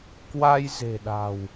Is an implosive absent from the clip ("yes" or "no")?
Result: no